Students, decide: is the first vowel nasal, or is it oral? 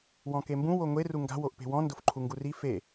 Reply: nasal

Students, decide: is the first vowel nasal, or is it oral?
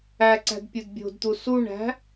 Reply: oral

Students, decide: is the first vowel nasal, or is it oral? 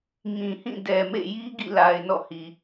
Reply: nasal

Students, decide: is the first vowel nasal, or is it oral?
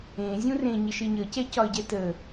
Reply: nasal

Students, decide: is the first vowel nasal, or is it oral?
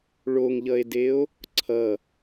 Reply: oral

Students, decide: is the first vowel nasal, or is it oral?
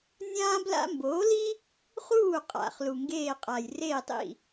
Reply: nasal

